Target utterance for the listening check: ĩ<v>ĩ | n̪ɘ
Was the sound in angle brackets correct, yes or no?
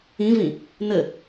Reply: yes